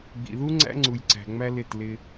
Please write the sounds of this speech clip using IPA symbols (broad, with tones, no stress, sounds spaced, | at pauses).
ɡ͡b ḭ˨ ð u˦ ŋ͡ǀ æ̰˦ ŋ͡ǀ u˨ j ǀ æ̤˨ ŋ͡m æ˦ l ɪ˦˨ t l ɪ˦